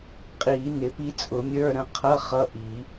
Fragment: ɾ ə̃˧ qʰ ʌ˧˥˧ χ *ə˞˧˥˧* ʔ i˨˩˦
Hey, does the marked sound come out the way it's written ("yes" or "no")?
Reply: no